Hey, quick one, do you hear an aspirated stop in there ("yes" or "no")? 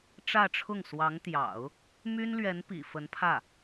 yes